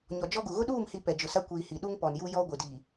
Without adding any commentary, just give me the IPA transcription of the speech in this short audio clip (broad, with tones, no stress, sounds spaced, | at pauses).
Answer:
ɲ ɔ˨ d͡ʒ ɔ˦ ɡ u˨ ɣ ʊ˦ ɗ uː˦˨ m h i˨ p ɛ˨ d͡ʒ ʊ˨ s a˦ kʷ iː˨ h i˨ ɗ u˦ ŋ p ɔ˨ n j u˦ j ɔ˦ ɡʷ ɪ˨ d i˨